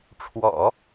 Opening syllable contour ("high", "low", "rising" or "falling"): low